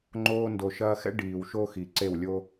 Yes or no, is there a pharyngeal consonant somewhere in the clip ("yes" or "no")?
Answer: no